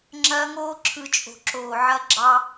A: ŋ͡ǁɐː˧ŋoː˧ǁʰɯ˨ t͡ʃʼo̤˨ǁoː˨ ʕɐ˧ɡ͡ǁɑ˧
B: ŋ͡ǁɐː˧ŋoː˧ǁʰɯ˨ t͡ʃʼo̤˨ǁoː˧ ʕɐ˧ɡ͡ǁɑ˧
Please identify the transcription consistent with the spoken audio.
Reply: A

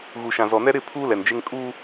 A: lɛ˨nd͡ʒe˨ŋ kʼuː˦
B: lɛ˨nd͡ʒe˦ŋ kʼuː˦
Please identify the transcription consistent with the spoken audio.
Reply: B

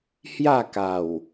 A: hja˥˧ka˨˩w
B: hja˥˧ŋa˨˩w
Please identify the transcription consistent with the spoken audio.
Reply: A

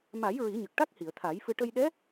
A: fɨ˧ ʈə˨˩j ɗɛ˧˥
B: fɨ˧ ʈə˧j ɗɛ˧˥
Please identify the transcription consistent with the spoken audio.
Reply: B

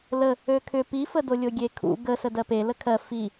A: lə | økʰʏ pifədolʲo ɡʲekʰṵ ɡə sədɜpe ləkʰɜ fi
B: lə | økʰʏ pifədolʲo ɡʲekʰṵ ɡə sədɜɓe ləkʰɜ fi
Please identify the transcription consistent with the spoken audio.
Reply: A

